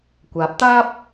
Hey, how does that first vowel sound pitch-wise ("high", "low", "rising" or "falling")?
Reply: rising